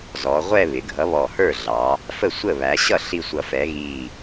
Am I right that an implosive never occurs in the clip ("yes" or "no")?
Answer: yes